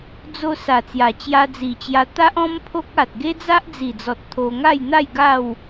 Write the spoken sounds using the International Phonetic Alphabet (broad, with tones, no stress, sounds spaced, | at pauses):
d͡z o˧ s a˨˩ t͡s j a˨˩ t͡ɕ j a˧ d͡z i˨˩ t͡ɕ j a˧ t̪ a˦ ʔ ɔ̃˦ m pʰ o˦ k̚ a˨ t̚ ɡ e˦ d͡z a˦ ʔ d͡z i˨˩ d͡z ɔ˨ t̚ t̪ʰ o˧ ŋ a˥˧ j n̪ a˥˧ j ɡ a˥˧ w